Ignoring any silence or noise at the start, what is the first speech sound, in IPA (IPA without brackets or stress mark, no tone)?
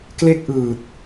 k